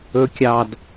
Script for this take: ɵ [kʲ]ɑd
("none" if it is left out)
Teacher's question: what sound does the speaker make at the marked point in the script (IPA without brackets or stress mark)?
kʲ